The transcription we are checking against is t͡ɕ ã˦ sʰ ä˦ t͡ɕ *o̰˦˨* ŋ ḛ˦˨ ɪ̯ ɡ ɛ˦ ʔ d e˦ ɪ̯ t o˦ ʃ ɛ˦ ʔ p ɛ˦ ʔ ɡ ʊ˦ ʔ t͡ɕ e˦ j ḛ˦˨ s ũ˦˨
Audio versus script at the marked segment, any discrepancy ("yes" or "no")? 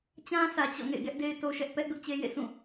yes